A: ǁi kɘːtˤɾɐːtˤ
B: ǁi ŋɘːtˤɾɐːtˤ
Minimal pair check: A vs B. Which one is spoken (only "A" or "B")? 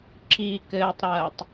A